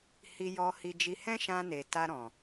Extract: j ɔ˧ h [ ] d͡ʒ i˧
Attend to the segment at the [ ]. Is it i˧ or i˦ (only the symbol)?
i˧